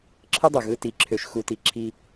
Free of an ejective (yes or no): yes